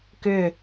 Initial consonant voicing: voiceless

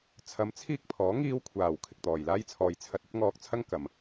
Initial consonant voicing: voiceless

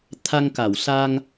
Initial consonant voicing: voiceless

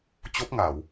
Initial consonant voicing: voiceless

